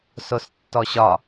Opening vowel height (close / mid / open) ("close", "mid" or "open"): mid